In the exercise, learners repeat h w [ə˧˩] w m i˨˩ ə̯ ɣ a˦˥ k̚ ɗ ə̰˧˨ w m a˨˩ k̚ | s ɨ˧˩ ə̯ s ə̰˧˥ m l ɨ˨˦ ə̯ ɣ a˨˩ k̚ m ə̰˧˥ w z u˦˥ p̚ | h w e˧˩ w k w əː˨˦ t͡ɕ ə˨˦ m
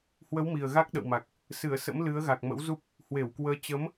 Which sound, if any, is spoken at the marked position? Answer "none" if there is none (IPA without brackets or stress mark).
ə˨˦